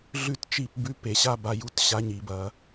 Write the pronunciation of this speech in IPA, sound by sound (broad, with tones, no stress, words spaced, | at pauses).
ɮʉ˥˨tt͡ʃi˥˨p bʉ˧˥˧p e˧˩˧ɕa˧˥˧ ba˥˨ju˥˨t ɕa˧˥˧ɲi˧˩˧bɐ˧˩˧